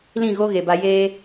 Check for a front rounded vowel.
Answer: absent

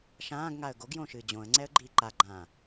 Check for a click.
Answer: present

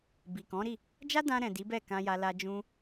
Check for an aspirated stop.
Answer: absent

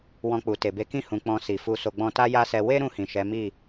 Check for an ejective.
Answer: absent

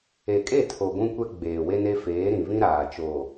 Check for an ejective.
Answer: present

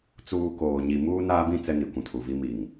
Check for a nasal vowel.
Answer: present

